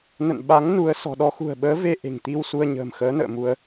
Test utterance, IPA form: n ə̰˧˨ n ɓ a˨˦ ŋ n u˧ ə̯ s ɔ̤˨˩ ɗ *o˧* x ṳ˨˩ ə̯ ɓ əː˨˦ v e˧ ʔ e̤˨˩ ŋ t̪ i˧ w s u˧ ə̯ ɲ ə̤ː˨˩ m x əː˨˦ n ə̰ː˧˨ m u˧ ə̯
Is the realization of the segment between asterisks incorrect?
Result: yes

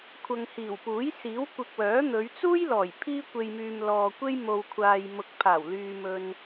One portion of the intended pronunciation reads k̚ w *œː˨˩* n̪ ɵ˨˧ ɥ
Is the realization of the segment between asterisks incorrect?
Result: yes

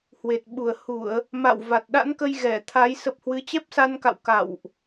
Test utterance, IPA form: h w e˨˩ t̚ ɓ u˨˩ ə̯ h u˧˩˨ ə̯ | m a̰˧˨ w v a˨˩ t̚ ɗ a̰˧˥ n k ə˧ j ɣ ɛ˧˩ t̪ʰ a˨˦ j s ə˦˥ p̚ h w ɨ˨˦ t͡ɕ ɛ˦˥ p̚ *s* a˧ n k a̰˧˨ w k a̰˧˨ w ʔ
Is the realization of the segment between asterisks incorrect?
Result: no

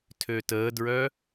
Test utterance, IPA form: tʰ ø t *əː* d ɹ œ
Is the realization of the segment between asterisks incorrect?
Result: no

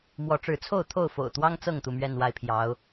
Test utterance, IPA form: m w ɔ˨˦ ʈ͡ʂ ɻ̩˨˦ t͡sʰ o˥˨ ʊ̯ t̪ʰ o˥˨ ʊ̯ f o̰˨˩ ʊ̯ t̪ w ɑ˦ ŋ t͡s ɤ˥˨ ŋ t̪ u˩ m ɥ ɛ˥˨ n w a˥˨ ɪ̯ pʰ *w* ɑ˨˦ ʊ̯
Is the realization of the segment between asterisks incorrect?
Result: yes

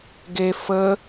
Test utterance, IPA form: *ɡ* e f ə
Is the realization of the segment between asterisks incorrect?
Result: no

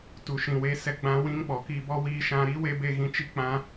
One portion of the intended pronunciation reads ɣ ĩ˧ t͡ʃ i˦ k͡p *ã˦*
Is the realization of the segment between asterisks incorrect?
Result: no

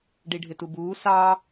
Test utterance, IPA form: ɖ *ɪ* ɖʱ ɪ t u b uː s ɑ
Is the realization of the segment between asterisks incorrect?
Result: yes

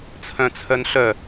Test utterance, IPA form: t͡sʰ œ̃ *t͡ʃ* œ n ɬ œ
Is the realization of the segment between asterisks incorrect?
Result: yes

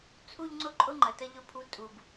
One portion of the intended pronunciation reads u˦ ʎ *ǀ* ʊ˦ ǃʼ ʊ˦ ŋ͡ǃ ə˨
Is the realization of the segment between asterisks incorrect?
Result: yes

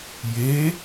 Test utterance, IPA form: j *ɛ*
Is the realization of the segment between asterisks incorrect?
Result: yes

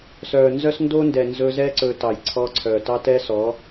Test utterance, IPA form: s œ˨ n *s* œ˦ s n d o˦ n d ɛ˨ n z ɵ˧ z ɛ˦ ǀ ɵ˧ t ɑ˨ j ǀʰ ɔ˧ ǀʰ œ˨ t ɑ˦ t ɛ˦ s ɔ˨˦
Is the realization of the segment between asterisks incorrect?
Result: yes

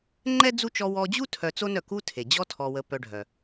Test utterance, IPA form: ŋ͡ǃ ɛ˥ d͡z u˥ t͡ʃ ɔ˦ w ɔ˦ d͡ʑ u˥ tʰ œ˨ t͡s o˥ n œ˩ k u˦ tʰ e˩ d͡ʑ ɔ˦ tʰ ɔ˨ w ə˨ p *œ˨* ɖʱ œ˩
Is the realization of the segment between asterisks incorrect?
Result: no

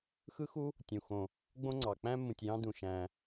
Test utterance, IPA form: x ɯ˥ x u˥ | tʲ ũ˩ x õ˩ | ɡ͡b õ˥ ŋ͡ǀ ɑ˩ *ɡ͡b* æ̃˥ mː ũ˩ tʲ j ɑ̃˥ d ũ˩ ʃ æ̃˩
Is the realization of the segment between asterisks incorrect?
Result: yes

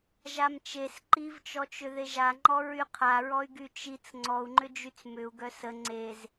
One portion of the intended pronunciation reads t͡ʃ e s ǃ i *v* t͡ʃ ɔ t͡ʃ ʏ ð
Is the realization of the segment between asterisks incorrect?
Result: no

